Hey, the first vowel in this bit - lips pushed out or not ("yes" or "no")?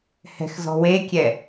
no